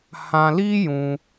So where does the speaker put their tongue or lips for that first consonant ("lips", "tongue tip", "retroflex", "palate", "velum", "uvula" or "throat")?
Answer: throat